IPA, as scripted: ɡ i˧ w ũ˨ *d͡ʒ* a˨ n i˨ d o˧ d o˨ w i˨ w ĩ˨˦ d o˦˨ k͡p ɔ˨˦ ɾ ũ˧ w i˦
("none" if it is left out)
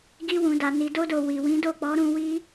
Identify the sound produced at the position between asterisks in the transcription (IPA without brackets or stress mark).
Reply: d